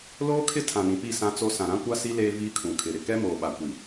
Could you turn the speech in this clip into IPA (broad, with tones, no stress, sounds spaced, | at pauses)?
l oː˦ kʰ ɪ˦ tʰ ã˨ n ĩ˨ p i˦˨ s ã˦ t͡s o˦ s ã˨ ɾ ã˦ kʷ a˦ s i˦ l eː˦ v iː˦ kʰ ũ˨ kʰ ɪ˨ ɾ ɪ˨ k ɛ˦ m oː˨ ɓ a˨ kʷ i˨